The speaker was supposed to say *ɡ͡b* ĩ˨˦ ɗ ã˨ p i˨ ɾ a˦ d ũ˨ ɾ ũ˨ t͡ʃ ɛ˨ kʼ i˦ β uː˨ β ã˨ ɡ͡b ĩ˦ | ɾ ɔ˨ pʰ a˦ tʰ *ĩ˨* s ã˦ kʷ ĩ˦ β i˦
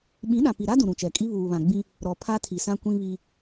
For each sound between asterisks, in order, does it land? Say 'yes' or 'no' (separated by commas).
no, no